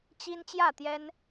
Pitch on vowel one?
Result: high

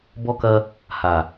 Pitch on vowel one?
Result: high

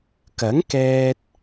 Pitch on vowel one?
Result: rising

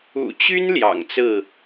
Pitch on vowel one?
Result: low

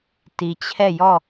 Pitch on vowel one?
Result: low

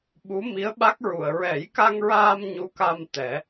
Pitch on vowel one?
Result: rising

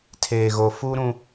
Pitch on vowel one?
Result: low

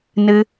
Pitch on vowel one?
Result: low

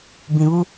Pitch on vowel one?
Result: low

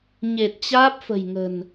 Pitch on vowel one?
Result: low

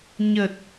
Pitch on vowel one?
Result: low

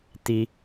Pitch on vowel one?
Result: high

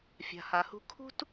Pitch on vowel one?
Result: low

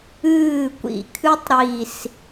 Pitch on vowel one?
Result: falling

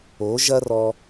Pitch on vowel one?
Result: rising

